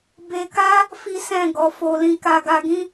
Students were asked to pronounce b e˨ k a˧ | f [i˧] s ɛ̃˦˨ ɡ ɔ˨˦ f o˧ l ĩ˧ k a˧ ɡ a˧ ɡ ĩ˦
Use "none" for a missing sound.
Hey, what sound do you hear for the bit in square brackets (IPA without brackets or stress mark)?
i˦